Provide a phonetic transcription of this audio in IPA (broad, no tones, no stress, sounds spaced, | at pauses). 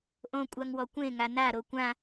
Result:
ʔ õ kʷʼ a ŋ w ɔ kʷ ẽ ŋ a n a ɾ o kʷ ã